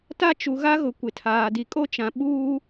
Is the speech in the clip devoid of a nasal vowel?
no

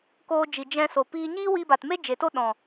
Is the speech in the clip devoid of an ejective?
yes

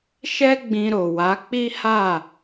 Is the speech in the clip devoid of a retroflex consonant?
yes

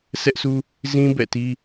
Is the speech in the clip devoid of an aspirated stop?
yes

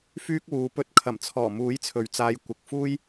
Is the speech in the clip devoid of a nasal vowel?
yes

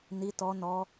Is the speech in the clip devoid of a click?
yes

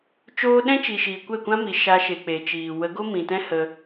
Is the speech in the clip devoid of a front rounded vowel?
yes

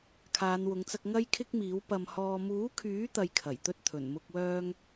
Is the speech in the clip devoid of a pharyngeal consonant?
yes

